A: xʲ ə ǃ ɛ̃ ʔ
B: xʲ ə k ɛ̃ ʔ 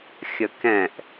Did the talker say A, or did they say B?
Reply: B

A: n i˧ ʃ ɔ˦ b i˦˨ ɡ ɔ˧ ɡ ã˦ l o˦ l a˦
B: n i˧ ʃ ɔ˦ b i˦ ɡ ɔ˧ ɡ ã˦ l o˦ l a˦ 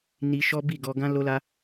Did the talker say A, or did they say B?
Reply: A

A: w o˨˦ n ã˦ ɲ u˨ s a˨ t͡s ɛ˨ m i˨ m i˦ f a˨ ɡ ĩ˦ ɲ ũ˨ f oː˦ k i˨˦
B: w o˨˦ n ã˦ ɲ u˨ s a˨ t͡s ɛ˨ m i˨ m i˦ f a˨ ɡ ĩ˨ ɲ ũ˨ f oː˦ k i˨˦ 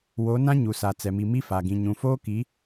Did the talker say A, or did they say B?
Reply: B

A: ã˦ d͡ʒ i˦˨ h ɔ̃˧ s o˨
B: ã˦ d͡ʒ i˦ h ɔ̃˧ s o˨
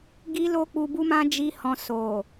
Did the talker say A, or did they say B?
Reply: B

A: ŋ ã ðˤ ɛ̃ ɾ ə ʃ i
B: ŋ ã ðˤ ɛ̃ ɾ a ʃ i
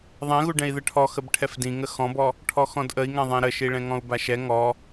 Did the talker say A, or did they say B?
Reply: A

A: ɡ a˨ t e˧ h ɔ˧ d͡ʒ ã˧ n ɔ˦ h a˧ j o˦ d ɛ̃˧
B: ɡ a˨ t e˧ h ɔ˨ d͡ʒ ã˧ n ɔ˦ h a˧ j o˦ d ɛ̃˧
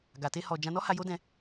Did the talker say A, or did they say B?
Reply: B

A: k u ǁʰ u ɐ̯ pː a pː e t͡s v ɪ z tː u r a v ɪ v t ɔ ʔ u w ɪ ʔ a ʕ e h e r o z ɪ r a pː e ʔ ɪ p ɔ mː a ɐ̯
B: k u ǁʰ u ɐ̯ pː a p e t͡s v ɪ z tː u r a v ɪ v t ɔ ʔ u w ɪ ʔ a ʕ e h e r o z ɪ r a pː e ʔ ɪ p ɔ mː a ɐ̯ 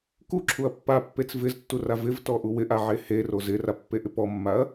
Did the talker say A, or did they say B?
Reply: A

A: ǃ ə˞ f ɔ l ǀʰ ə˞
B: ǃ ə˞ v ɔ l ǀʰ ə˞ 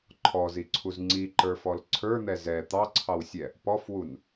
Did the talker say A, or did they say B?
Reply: A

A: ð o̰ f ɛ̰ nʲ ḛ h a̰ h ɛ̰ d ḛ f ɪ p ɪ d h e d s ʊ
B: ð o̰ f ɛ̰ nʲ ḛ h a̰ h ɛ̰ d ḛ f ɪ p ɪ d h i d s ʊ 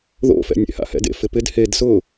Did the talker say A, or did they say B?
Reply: A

